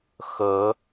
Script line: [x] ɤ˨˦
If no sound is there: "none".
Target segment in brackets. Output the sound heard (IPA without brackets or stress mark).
x